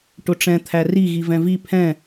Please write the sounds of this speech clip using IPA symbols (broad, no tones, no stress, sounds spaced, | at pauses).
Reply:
ʈ ʊ ʈ͡ʂ ɛ̃ t̪ʰ æ r i ɣ i v ɛ̃ v i pʰ ɛ̃